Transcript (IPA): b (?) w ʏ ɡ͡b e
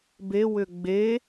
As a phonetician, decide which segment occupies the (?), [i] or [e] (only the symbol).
e